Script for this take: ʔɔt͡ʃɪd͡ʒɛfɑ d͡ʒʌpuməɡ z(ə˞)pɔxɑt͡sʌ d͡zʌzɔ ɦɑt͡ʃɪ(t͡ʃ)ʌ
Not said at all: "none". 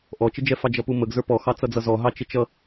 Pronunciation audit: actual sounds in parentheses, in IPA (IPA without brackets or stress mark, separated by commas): ə˞, t͡ʃ